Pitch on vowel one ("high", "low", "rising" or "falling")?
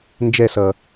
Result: falling